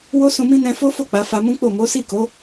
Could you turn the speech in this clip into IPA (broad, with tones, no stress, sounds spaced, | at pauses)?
w o˦ s ũ˧ m ĩ˦ n ɛ̃˧ f o˦ f o˦˨ k͡p a˨˦ f a˧ m ũ˦ k͡p o˦˨ m o˨˦ s i˦˨ k o˨˦